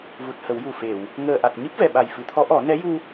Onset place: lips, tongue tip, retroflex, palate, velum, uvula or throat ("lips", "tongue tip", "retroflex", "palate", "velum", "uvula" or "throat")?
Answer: lips